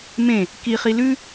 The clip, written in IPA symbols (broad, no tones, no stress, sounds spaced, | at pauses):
m ẽ | k i χ i l ʉ